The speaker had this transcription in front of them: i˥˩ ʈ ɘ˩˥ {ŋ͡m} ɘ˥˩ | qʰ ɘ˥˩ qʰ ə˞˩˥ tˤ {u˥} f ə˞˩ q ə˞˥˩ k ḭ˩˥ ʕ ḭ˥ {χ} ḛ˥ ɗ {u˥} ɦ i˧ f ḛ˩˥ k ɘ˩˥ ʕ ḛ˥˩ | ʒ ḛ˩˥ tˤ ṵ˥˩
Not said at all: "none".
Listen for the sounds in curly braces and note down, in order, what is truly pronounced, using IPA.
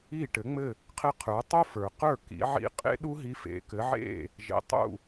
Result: ŋ͡m, u˥, qʼ, u˥

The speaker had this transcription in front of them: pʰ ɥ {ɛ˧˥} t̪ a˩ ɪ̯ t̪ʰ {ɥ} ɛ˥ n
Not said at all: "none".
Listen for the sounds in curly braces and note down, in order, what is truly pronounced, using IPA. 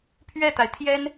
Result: ɛ˥˩, j

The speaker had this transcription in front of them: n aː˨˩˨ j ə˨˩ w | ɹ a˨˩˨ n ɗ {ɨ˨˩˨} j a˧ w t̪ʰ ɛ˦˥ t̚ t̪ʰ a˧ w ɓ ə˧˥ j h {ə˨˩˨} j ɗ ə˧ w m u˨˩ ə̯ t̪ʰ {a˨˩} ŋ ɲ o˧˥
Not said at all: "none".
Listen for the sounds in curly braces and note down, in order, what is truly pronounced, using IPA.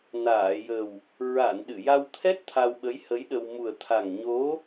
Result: ɨ˨˩˨, ə˧˥, a˨˩

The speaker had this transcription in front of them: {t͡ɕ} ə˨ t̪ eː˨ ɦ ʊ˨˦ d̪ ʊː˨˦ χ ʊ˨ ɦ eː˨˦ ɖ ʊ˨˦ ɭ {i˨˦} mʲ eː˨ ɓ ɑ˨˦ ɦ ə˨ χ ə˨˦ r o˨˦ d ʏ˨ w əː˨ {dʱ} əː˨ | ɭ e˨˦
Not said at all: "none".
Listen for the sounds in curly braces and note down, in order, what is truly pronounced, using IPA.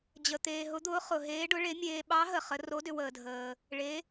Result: d͡ʑ, e˨˦, dʱ

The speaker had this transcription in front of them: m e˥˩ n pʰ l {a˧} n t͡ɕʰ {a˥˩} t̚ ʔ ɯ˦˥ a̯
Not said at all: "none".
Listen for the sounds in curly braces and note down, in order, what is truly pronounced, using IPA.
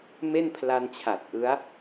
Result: a˧, a˨˩

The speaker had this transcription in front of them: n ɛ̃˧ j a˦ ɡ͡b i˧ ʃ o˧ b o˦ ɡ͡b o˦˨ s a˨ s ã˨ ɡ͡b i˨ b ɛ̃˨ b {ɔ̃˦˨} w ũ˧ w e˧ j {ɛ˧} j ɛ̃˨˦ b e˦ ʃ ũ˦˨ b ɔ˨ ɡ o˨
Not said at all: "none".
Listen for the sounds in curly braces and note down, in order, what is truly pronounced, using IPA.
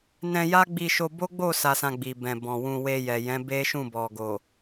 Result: ɔ̃˨, ɛ˨

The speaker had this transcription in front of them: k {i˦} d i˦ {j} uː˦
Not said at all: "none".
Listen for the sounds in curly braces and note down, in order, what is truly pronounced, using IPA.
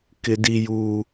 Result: ɪ˦, j

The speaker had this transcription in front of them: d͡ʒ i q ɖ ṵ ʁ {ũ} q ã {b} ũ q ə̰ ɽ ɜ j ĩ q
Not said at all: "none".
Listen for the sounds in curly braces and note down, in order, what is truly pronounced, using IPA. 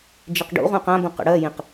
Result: ũ, b

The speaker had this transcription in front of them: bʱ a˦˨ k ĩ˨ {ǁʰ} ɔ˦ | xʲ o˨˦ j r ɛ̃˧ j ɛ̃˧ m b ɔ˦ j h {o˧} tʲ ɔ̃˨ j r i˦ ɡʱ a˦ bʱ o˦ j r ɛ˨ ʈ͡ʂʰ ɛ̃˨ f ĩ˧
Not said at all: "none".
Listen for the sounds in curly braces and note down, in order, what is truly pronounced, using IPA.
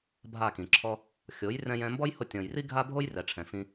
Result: ǁʰ, o˧

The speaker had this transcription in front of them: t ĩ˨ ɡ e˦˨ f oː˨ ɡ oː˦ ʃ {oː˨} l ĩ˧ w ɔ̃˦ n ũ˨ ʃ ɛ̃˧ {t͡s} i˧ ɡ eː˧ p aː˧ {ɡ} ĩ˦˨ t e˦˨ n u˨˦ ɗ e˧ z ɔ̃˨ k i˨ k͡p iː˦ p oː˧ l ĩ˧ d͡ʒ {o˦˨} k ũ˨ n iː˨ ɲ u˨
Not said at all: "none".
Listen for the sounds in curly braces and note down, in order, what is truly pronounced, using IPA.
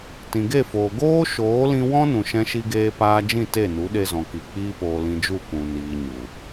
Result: oː˨˦, ʃ, d͡ʒ, u˦˨

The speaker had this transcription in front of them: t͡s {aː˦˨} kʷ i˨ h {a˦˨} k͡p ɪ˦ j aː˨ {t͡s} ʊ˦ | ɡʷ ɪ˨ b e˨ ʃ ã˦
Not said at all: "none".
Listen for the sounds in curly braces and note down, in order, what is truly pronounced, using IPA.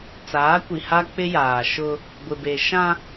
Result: aː˨˦, a˦, ʃ

